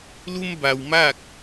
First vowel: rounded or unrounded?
rounded